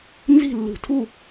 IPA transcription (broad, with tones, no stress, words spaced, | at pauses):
nzi̤˥˨lːṳ˧˩˧tʰu˥˨